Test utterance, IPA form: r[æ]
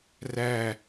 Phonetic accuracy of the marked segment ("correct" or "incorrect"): correct